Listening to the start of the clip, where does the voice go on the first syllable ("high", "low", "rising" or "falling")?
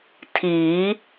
rising